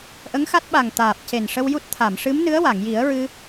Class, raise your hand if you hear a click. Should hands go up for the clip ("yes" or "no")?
no